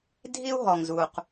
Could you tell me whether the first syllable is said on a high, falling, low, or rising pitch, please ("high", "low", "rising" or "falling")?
high